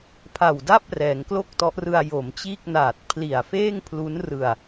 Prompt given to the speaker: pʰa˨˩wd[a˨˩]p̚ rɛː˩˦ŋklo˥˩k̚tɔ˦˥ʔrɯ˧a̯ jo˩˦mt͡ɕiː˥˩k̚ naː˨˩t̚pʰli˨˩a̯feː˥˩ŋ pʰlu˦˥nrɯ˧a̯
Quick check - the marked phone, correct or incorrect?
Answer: incorrect